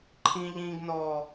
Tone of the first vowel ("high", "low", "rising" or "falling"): high